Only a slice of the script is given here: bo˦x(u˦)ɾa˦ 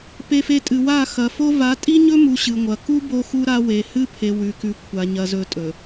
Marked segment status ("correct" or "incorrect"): correct